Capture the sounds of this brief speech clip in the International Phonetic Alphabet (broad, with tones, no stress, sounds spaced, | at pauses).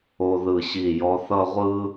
o˧ ð ɯ˧˩ ɕ i˧˩ j ɔ˧ θ ʌ˥˧ ʁʷ ɯ˥